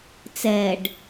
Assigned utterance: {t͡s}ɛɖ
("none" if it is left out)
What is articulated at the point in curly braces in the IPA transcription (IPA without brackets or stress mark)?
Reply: t͡s